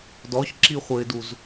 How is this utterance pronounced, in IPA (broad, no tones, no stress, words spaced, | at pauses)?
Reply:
dɔçǁiχʷɘɪ̯duz